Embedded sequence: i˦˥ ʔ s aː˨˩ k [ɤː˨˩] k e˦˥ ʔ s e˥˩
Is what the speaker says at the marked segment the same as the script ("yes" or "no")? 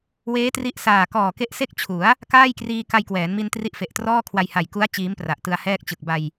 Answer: no